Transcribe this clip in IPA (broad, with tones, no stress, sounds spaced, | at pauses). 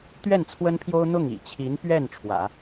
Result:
t̪ ɥ ɛ˥˩ n t͡sʰ w ə˥ n pʰ j o˥ ʊ̯ n̪ ʊ˥˩ ŋ ḭ˨˩ t͡ɕʰ i˧˥ n p ɥ ɛ˥˩ n ʈ͡ʂʰ w ä̰˨˩˦